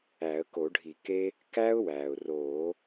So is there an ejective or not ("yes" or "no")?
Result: no